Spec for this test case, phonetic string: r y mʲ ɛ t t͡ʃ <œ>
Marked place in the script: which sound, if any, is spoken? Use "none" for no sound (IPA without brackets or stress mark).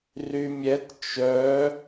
œ